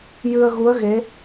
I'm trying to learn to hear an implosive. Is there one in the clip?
no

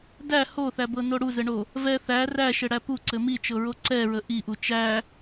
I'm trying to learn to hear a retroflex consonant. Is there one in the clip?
yes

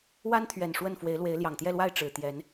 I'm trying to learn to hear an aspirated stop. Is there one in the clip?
yes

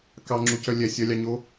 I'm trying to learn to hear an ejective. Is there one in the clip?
no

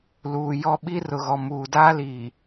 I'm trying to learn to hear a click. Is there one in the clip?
no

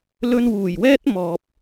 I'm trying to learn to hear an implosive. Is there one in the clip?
no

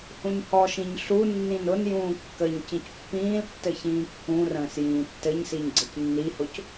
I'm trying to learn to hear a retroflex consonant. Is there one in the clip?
no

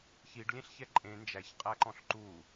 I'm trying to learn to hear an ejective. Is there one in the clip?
yes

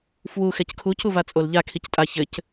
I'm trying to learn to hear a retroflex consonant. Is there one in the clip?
no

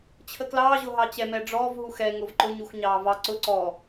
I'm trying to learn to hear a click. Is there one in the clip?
yes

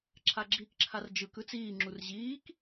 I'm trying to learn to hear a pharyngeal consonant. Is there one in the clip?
no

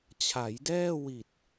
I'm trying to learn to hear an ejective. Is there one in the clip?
no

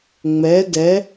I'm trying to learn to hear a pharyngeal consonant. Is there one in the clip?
no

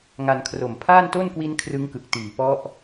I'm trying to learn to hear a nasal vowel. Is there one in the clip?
no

